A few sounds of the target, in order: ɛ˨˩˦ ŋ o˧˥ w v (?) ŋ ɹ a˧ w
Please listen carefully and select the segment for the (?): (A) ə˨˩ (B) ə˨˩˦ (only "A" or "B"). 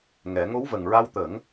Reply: A